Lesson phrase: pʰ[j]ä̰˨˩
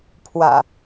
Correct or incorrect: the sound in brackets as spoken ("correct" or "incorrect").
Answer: incorrect